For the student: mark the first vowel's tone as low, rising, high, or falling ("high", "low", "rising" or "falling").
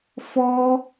high